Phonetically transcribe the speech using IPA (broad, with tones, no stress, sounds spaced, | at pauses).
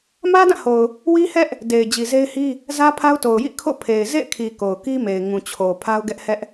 m ä˦ d ã˦˨ h o˨ ʊ̯ | w i˦ h ɛ˦ ʔ | d e˨ ɪ̯ d͡ʑ i˨ z e˦ ɪ̯ h i˦ | z ä˦ pʰ a˦ ʊ̯ t o˨ ʊ̯ j ḭ˦˨ kʰ o̰˦˨ pʰ e˨ ɪ̯ z ḛ˦˨ ɪ̯ kʰ i˨ k o˨ ʊ̯ k i˦ m e˨ ɪ̯ ŋ ũ˨ t͡ɕʰ o˨ pʰ a˦ ʊ̯ ɡ ɛ˦ ʔ h ɛ˦ ʔ